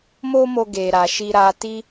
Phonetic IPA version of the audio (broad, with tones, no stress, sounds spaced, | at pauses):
m o˦ m o˧ ɡ e˨ ɾ a˨ ʃ i˧ ɾ a˧ t i˦